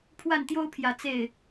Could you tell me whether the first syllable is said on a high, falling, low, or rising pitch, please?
falling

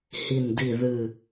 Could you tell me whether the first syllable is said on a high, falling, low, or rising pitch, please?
low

